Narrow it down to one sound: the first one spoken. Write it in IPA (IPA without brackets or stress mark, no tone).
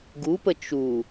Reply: ɡ